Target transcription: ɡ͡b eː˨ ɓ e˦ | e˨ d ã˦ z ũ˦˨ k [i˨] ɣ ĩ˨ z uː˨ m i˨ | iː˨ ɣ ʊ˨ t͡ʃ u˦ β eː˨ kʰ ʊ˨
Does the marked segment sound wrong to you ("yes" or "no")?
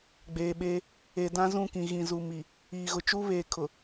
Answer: yes